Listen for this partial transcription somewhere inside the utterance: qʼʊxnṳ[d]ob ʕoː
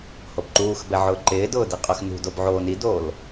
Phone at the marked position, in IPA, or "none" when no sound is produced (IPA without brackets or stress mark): d